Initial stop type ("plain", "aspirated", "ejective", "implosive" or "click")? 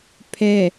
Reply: aspirated